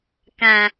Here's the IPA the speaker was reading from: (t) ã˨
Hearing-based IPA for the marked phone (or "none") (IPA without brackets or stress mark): k